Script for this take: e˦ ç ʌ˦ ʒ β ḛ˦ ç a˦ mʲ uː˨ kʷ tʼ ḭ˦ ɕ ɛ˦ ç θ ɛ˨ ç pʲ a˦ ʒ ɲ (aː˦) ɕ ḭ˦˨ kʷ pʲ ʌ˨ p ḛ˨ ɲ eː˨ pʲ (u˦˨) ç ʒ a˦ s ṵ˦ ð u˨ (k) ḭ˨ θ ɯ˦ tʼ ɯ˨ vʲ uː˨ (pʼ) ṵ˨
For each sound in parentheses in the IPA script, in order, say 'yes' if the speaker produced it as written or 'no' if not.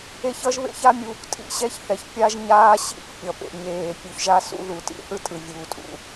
yes, no, no, no

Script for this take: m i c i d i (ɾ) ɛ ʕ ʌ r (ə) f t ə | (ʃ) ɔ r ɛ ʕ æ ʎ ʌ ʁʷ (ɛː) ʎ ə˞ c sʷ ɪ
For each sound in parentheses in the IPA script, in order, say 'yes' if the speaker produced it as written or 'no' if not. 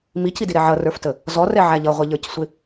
yes, no, no, no

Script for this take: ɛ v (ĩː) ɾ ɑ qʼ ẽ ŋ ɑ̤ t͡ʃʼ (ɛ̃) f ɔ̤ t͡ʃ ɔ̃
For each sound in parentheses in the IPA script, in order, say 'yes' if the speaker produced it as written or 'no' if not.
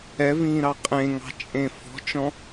yes, no

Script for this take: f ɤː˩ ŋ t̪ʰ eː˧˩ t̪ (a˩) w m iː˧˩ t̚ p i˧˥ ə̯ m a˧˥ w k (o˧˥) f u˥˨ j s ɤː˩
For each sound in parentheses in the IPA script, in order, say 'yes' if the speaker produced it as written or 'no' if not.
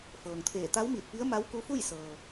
no, no

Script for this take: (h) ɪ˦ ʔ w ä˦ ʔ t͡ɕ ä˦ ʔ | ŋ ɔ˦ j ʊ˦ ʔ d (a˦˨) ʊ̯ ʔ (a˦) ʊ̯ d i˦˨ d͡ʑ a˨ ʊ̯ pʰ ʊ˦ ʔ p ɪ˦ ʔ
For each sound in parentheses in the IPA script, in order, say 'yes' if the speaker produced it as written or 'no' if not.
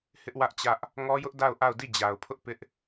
yes, yes, no

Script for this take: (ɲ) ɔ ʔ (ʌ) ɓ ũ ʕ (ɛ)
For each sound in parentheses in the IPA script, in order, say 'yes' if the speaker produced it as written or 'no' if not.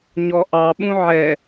yes, no, yes

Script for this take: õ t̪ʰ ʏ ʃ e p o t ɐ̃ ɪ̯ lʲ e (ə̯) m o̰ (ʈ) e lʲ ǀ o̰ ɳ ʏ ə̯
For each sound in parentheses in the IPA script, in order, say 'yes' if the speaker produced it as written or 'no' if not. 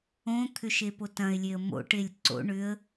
yes, yes

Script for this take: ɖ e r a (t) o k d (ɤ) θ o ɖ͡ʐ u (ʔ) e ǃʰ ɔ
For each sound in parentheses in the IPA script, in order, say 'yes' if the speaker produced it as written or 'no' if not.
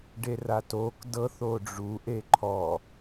yes, yes, yes

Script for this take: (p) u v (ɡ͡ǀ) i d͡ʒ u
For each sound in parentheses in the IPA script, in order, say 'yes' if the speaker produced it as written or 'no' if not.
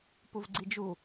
yes, yes

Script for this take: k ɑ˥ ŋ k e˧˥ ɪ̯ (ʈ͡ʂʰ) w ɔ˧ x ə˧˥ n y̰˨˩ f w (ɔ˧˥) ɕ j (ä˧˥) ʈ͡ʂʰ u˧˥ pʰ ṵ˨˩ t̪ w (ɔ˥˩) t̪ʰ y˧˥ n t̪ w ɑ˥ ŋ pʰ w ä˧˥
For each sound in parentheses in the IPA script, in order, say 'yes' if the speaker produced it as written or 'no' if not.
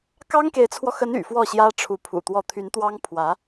no, no, no, yes

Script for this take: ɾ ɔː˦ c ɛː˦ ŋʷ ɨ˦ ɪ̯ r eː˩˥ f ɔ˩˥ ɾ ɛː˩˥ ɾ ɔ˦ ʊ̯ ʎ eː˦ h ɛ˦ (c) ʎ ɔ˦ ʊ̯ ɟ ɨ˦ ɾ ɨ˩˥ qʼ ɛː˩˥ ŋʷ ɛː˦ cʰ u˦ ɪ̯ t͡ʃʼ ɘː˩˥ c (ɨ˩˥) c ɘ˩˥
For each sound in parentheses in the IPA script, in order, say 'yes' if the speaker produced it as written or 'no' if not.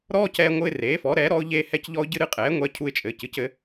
yes, yes

